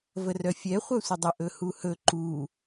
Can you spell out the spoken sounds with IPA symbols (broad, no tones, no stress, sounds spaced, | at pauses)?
v ə r œ fʲ ɛ χʷ œ sʷ ə dˤ ə ʔ ɵ h u h ɵ ǃ u